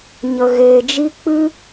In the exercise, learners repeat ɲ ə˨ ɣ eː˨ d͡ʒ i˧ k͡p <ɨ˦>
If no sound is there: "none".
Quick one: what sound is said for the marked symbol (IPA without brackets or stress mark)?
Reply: ɨ˦